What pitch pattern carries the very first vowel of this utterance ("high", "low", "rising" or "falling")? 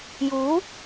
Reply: rising